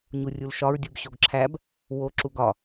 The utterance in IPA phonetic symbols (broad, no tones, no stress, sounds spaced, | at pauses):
ɲ u rʲ u l ʃ ɒ ɹ dʲ u b ɕ o ɡ ǁʰ æ b | w o ǁ u ɡ ɒ